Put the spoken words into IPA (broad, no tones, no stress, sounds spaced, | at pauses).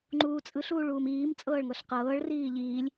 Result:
ŋ͡ǃ uː t͡sʼ ɯ ɬ uː ɭ uː m iː m t͡sʼ ɤː ɭ ŋ ɤ ɬ q ɤː ɭ r iː ʎ iː lʲ